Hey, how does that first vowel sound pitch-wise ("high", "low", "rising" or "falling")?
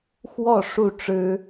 falling